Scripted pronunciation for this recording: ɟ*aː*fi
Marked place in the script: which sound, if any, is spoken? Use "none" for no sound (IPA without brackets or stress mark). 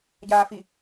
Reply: aː